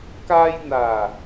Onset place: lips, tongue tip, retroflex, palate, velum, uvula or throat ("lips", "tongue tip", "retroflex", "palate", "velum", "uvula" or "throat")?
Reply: velum